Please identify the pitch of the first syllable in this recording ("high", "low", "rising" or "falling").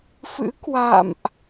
rising